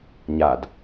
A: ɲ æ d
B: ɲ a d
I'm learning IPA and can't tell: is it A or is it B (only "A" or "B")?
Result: B